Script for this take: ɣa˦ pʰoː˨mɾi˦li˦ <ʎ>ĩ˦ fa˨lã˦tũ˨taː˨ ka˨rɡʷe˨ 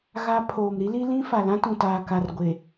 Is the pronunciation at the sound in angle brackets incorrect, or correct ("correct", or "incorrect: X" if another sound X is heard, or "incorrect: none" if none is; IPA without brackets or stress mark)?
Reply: incorrect: l